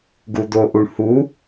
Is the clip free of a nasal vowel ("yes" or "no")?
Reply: yes